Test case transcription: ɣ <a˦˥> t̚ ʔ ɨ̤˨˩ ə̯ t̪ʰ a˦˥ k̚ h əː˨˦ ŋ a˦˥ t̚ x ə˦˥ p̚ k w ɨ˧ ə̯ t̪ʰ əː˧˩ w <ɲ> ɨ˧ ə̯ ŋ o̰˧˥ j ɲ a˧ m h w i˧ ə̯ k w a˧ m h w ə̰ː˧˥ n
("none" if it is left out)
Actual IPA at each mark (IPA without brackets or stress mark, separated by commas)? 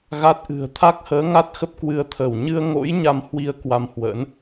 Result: a˦˥, ɲ